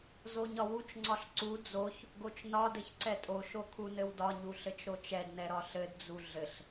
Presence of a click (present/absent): present